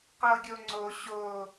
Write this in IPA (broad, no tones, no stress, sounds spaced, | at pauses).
q ɤ ɡʲ o ŋ͡ǀ o ɕ o